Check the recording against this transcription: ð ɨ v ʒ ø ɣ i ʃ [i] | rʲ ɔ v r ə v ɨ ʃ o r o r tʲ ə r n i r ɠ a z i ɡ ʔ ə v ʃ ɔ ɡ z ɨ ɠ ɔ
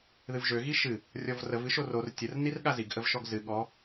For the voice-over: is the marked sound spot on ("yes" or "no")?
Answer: no